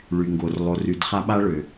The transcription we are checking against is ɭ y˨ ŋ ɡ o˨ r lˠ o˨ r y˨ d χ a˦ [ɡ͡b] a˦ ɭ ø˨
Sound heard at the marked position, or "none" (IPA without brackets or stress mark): ɓ